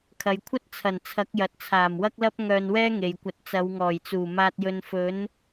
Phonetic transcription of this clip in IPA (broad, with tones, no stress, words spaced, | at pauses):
kʰɐ˨jkʷʰɐ˥t̚t͡sʰɐ˨˩n t͡sʰɐ˨˥k̚jɐ˨t̚t͡sʰaː˨˩m wɐ˥k̚lɐ˥p̚ ŋœː˧nwɛː˥ŋe˨jkʷɐ˨˥t̚ t͡sɐ˨˧wŋɔː˨˩jt͡suː˨˩ maː˧t̚jɵ˧n fɵ˨˥n